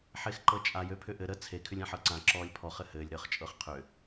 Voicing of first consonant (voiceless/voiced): voiceless